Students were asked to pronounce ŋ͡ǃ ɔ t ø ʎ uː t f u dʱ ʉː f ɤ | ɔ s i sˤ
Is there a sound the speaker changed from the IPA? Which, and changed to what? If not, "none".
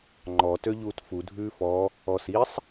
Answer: ɤ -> ɔ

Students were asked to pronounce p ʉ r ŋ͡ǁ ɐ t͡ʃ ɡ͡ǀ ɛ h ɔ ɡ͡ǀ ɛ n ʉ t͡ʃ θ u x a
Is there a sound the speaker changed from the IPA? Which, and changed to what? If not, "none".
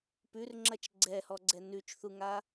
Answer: x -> ŋ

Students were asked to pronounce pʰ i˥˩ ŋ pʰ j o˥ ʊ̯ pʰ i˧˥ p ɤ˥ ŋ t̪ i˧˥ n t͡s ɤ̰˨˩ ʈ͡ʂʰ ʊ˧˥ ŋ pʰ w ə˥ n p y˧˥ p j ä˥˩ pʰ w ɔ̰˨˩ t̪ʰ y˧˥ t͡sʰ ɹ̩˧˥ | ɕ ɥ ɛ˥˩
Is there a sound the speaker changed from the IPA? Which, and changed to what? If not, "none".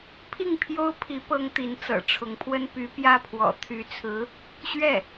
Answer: none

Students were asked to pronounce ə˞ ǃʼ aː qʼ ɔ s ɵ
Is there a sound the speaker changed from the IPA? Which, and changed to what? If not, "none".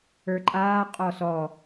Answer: ɵ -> ɔ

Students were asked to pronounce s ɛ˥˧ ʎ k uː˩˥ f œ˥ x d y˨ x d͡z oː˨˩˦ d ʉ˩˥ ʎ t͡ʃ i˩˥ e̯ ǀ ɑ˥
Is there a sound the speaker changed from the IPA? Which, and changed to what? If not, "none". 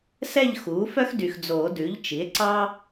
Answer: k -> x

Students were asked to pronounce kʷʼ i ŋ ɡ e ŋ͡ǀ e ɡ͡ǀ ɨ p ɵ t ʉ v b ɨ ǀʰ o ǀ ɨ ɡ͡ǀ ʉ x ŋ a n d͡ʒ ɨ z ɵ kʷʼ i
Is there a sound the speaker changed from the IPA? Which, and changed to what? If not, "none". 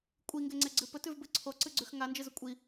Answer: none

